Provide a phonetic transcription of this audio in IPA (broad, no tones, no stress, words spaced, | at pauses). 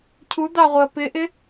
cʰudɑʁʷɪɐ̯ pɪʔɪ